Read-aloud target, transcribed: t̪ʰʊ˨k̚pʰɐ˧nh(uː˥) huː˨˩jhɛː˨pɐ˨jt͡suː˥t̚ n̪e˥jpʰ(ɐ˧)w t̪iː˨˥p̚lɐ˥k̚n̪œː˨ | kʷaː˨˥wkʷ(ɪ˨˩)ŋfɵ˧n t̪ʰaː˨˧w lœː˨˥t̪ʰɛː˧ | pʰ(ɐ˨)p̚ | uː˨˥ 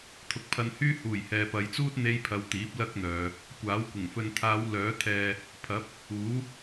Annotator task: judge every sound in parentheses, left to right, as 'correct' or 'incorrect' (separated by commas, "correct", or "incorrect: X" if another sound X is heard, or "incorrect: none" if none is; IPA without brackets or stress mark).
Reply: incorrect: yː˥, correct, correct, incorrect: ɐ˨˥